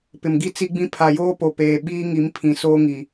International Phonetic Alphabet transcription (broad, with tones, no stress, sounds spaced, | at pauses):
p ɪ˨ m ɡ i˦ t͡s i˦ ɡ͡b ĩ˦ pʰ a˨ j oː˦ p o˨ p eː˨ ɓ iː˦ ŋ i˨˦ m pʰ ĩ˨ s oː˦ ŋ i˨